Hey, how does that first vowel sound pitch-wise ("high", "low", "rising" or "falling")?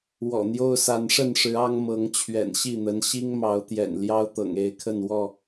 low